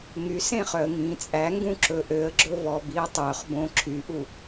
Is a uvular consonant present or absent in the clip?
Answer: present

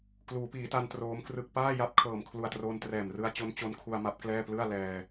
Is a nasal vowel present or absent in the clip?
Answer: absent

